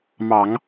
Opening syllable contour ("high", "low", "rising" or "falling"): low